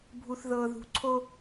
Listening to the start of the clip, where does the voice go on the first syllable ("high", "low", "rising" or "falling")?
low